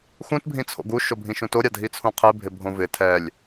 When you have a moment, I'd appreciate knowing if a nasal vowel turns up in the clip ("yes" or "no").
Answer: yes